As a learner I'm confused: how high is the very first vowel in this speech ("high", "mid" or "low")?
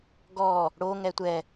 mid